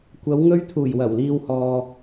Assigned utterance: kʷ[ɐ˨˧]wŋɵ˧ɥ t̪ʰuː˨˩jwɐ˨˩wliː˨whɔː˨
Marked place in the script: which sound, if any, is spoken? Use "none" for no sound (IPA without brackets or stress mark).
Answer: ɐ˨˧